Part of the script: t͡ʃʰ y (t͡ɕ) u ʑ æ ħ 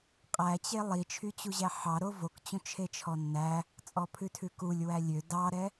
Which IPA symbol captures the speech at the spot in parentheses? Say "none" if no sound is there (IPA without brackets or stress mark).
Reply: t͡ɕ